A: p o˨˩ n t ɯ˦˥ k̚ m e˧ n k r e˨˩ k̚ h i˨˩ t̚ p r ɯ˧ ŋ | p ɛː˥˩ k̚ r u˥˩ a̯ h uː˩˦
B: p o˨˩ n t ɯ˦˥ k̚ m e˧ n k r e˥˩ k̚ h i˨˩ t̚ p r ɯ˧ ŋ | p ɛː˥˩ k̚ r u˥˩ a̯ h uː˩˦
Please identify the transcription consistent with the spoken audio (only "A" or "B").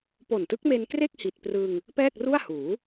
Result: B